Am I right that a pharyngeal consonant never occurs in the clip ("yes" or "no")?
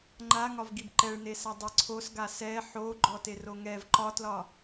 no